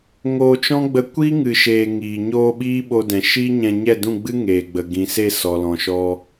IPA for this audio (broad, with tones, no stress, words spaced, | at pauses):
ŋoː˧t͡ʃɔ̃˦ɡ͡bə˧ kʷi˦ŋɨ˨ʃeː˨ ŋiː˨ ɲoː˧ ɓiː˦ ɓo˧dɛ̃˨ ʃiː˦ɲɛ̃˧ ɲɛ˦˨dũ˦˨ɡ͡bɨ˦ ŋeː˨ɡ͡bə˨ ɡĩ˨se˦˨sɔ˨ lɔ̃˨ʃɔ˧